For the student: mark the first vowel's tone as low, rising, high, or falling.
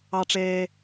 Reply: high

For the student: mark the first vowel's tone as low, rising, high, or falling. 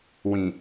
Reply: low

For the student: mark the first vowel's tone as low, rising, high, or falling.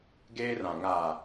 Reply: high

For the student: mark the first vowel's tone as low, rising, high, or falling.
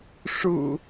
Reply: low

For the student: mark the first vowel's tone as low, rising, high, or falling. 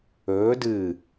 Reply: rising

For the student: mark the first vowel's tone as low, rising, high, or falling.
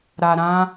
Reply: low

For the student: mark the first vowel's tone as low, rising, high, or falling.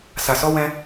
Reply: low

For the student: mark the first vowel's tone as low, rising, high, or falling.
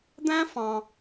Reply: high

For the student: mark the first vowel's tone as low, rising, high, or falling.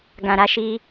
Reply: low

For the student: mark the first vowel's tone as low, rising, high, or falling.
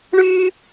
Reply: high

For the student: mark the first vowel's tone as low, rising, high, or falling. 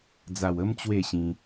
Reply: low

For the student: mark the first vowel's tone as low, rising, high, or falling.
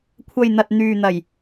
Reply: low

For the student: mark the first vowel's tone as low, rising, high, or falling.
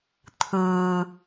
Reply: low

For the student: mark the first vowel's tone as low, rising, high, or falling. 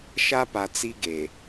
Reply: high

